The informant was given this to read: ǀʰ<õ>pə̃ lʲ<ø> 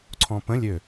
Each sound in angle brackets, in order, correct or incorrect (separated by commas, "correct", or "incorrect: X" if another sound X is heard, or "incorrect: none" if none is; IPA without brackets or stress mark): incorrect: ɔ̃, correct